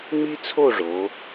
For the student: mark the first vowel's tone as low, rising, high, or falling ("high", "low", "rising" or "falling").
high